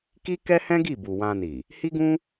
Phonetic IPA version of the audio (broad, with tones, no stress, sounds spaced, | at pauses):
k i˦ k ɛ˦ h ɛ̃˦ ɡ i˦˨ b u˨ w ã˧ n i˨ | h i˦ ɡ ũ˦